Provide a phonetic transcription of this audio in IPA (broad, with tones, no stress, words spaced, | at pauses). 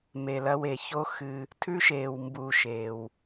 me˨lɐ˧w e˨ço˦xɨ˧ | tʰʉ˦ʃeː˨w mbu˨ ʃeː˨w